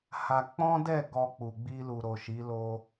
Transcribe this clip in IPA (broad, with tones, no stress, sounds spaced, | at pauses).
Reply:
h a˧ k͡p ɔ̃˦ d ɛ˦˨ ɡ ɔ˧ k͡p u˨ ɡ͡b i˧ l u˨ ɾ o˨ ʃ i˨˦ l o˧